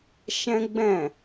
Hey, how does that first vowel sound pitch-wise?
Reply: high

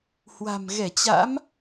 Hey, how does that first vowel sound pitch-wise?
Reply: low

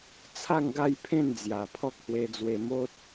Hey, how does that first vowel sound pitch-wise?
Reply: falling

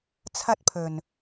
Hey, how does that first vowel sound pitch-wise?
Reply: high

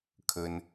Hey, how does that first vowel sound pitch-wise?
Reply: low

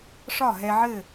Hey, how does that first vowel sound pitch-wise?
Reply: falling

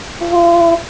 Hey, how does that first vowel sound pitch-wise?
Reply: high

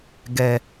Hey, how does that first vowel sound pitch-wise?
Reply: high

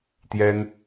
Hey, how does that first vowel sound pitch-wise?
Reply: high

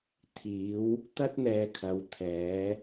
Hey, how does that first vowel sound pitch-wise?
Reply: rising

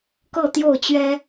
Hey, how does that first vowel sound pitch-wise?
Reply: falling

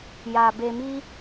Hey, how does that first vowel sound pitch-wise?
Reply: low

